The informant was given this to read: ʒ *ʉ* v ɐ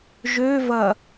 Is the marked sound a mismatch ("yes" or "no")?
yes